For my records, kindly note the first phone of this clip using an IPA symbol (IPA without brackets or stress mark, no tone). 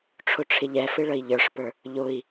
ʈ͡ʂʰ